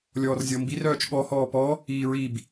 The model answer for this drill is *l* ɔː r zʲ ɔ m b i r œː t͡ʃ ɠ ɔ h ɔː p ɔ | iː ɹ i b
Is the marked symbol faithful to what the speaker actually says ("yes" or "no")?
no